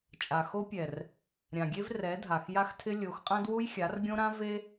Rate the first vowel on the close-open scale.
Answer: open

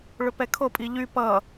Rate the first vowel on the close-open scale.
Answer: close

